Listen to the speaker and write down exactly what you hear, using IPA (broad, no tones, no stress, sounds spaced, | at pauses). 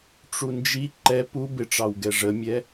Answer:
ʈ͡ʂ u n d͡ʒ i ǃ ɛ p u b ɪ ʈ͡ʂ ɑ w ɡ ɛ ʐ ə mʲ ɛ